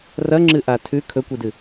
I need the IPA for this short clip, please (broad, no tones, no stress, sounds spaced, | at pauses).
r ɐ ŋ͡ǁ ɨ ʔ a tʰ ʉ kʰ ɵ kʷ i d ɨ